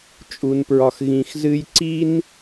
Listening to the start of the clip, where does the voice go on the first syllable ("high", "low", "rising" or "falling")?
low